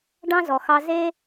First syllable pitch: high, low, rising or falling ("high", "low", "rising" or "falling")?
high